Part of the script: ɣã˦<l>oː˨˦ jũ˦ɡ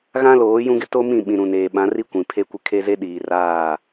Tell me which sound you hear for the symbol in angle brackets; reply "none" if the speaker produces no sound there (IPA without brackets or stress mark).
l